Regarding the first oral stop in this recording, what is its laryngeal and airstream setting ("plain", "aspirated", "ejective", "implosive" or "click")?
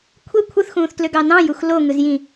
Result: aspirated